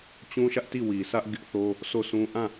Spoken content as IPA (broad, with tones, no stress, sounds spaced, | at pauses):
t͡ɕ ũ˦ ʃ ä˦ ʔ t i˦˨ w i˨ sʰ ä˦ ʔ ɡ ɪ˦ ʔ θ o˦ | sʰ o˦˨ sʰ ũ˦ ʔ ã˦˨